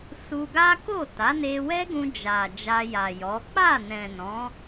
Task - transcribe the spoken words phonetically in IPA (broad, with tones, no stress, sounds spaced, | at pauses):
s u˧ ɡ a˦ k o˦˨ t a˨˦ n e˧ w ɛ˦ ɡ ũ˧ d͡ʒ a˨ d͡ʒ a˧ j a˨ j ɔ˨˦ k͡p a˦˨ n ɛ̃˨ n ɔ̃˨˦